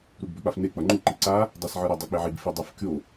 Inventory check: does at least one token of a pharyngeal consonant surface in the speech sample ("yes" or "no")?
yes